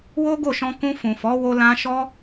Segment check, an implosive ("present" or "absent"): absent